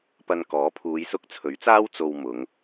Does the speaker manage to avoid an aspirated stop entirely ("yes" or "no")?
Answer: no